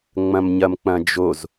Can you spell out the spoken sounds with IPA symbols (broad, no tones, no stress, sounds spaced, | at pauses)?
ŋ͡m ɐ̃ m ɲ ɐ m k͡p ɐ̃ d͡ʒ o z